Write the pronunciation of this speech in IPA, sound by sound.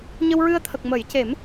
ɲ ə˧ w ɹ ɨ˧ ə̯ t̪ʰ ə˨˩ k̚ m ə˨˩˦ j c e˨˩˦ m

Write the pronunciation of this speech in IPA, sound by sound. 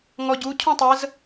ŋ ɔ ɟ u cʰ ũ tˤ ə z

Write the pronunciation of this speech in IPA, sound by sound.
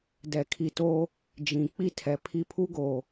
d ɛ˨ kʰ i˨ t oː˦ | d͡ʒ ĩ˨ k͡p i˦ tʰ ɛ˨ pʰ i˦ pʰ u˦ ɡ oː˨

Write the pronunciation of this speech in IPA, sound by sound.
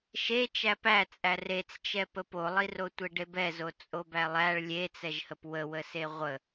ʃ e t͡ʃ æ p æ t͡sʼ æ r e t͡s t͡ʃ ɛ p ə p o lˠ i r o tʷ e ɖ e b ɛ z o t͡sʼ o b æ lˠ æ ɭ lʲ e t͡s ɛ ʒ h ə p w ə w ə s e ʁʷ ə

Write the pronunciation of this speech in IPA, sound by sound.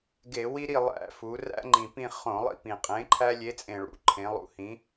ɡ e˧˩˧ w i˦ ɾ i˦˨ lˠ æ̰˧˩˧ f u˩˧ r æ̰˦ ŋ͡ǃ ĩ˨˩ p ĩ˦˨ χ õ˧˩˧ lˠ ḭ˦˨ p ĩ˨˩ qʼ ẽ˨˥ ǃʰ æ˦ lʲ e˨˥ t͡sʼ ẽ˨˩ ɭ ṵ˩˧ ǃʰ ẽ˩˧ lˠ ṵ˨˥ h ĩ˨˥

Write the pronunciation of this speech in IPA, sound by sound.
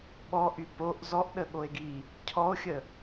ɓ ɔ ʔ y p o ʔ z ɔ ʔ ɗ ə ɠ o e̯ ɡ i | cʰ ɔ o̯ xʲ ə

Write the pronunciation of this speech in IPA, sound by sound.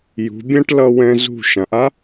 j ṳ˩˧ bʲ ã˥ ʈ l ʌ˧ w ɛ̃˧ z ṳ˧˩ ʃ ã˩˧ ʔ a˥

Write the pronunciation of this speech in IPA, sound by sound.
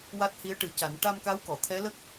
w a˦˥ t̚ h i˧˥ ə̯ ʈ ɨ˨˩˦ c a˨˩˦ n ʈ a˧ m k a˧˥ w k ɔ˨˩˨ t̪ʰ ɛ˧˥ l ə˦˥ k̚

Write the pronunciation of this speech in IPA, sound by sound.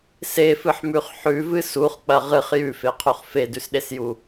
s e f ɨ ħ m ʉ χ ħ ʉ v ɨ s u χ k͡p ɐ ʁ ɨ χ j ʉ f e qʰ u χ f e d ʉ s ɗ e s j u

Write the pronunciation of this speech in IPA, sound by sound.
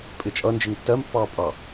pʼ ɪ t͡ʃʼ ʌ n d͡ʒ ɪ ŋ tː ɜ m pː ɑː pʼ ɑ

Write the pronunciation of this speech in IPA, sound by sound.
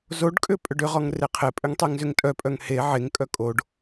z o ɖ kʼ ʏ pʼ ʏ ɖ ʏ ʁ ɔ ŋ r e qʰ e pʼ ʏ ŋ tˤ e ŋ z ʏ ŋ tʼ œ pʼ œ ŋ h e ʕ e ŋ kʼ œ kʼ o ɖ

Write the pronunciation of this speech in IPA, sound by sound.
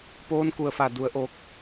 p oː˧˥ n k u˧˩ ə̯ f a˧˩ d u˩˧ ə̯ ʔ oː˧ k̚

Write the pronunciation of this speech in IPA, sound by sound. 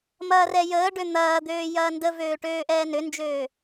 m ɐː r ɛ j əː ɖ ø n̪ ɐː d̪ øː j ɐː n d ə v øː ʈ øː ʔ ɛː n ø n d͡ʒ øː

